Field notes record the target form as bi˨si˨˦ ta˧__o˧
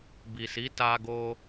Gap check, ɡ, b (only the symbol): ɡ